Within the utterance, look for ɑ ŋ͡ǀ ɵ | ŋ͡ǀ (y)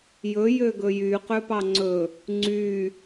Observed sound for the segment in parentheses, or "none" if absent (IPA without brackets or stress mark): y